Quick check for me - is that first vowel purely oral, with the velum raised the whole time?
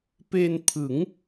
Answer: yes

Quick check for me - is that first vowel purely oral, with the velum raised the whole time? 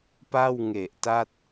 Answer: yes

